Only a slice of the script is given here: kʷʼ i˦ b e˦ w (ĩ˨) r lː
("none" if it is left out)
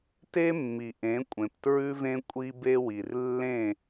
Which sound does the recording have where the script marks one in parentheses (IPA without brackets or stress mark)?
i˨